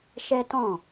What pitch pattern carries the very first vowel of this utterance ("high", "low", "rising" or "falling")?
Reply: high